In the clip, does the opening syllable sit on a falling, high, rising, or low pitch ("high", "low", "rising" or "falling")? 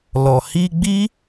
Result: low